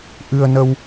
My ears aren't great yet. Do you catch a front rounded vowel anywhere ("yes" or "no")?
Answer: no